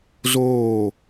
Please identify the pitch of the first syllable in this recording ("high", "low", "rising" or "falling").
falling